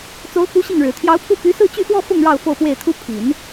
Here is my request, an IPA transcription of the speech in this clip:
t͡so˧˥ʊ̯ku˧˥ ɕi˥˩ŋɻɻ̩˨˩ t̪ʰjɑ˧˥ʊ̯pʰu˥˩ py˧˥sɹ̩˥˧t͡ɕy˥˧xwɔ˥˧ fʊ˥˧ŋ ɻɑ˥˧ʊ̯fo˥˧ʊ̯pwe˥˩ɪ̯t̪ʰu˥ pʰi˨˩˦n

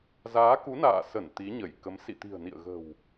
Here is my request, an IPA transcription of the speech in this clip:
zaː˨˦ku˨˦na̰ː˧˨sə˧˩n t̪i˨˦ɲə˧˩jkə˨˦m sḭ˧˨t̪i̤˨˩ə̯nḭ˧˨ə̯ɣə̤˨˩w

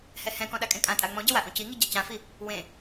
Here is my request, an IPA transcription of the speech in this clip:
hɛhɛ̃kɔ̃ ɗakʼẽkʼãtʼa ŋ͡mɔ̃ɟɛ waʔõciŋi ɟacãfi | wẽ

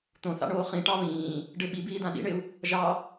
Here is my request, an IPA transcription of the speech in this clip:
t̪õθɑ̰ɳoː χĩʈɑ βĩː | ɖɪ ɓibiːdã ɗḭɳɪu̯ | ʒɑ

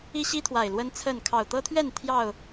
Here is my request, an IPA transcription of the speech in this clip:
i˦ɕi˦t̪ʰwa˨˩ɪ̯ lwə˦nt͡sʰə˥˨n kʰɑ˨˩ʊ̯t̪ɤ˦t̪ʰɥɛ˥˨n t̪ʰjɑ˥˨ʊ̯

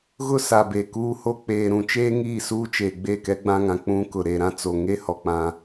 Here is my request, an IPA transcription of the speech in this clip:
ɣʊ˦sa˨ be˨kuː˦ho˦ k͡peː˨ɾũ˨t͡ʃeː˦ ŋiː˦˨suː˦t͡ʃeː˨ ɡ͡be˦˨kɛ˦ ɡ͡bã˦ŋã˨ k͡pũ˦kʊ˨ ɾe˨ɾã˦t͡so˨ ŋe˦hɔ˨ k͡pã˦

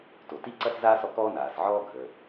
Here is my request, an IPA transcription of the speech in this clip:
to˩ti˥ǀɐ˥s zaː˥s ɔ˩kɔː˥naː˩sʕɔː˥ ɡʱəː˩

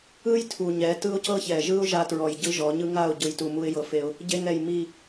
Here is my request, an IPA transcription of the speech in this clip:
ɯ˦j tʰu˨ɲɛ˨˦ tɯ˦ʊ̯cɤ˦çɛ˨ ʒɯ˦ʊ̯ ʒa˧tɹɔ˨j ɟɯ˧ ʒɔ˨˦ɲɯ˦ ŋa˦˨ʊ̯ɟɯ˨jtu˨ mu˧ɪ̯jɤ˨fe˧ʊ̯ | ɟe˧ŋɛ˨j mi˨

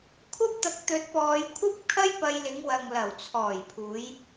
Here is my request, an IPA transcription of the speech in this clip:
kʷʰɐ˥p̚t̪ɐ˧k̚ t̪ɵ˧t̚pɔː˧j kʷʰɐ˥p̚kʰɐ˥jpɐ˧jlɪ˨˧ŋ wɐ˨ŋ lɐ˨˩wt͡sʰɔː˨˩jpʰuː˨˧j

